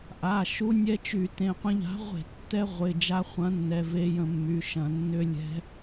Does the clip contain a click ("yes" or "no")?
no